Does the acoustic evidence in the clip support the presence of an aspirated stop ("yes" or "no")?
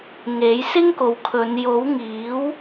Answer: yes